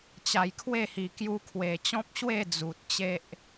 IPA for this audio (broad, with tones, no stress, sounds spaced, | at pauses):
t͡ɕ a˨˩ j kʰ w e˥˧ h i˨˩ k j u˧ kʰ w e˨˩ t͡ɕ ɔ̃˦ p̚ ɕ w e˥˧ d͡z u˨ t̚ t͡ɕ e˦ ʔ